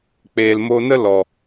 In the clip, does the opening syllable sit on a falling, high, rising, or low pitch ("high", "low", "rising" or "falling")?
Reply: low